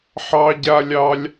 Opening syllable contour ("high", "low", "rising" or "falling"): high